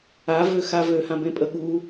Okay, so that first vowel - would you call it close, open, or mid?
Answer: open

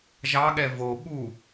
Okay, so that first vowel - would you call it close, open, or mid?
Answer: open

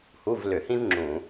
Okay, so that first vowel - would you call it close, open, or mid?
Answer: close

